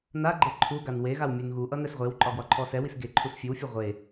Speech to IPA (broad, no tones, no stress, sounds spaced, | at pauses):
n a ɡ͡ǃ e ǃʰ u ɡ a n w e ɣ a w mʲ ʉ n ɣ u ʔ ʌ n ɛ s ʁʷ e w ǃʼ ɒ ɡ w ɒ ǃʰ ɔ s ɛ w i s ɡ e ǃʰ u s fʲ ʉ w fʲ ʉ ʁʷ e